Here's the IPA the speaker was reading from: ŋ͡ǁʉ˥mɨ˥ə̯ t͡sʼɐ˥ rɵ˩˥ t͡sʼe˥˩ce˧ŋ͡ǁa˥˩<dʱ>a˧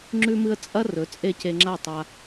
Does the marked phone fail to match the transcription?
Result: yes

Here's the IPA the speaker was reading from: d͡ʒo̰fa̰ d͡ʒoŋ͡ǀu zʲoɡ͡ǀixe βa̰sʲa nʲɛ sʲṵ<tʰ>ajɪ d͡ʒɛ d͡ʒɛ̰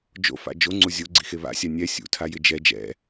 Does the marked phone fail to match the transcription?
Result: no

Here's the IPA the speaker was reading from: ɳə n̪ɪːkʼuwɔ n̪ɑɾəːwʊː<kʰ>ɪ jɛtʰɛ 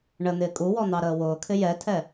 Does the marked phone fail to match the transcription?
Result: no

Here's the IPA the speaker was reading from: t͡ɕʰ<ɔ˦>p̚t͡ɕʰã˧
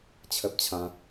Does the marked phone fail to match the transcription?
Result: yes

